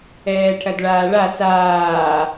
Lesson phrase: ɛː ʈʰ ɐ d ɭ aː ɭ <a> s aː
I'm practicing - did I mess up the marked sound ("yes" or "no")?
no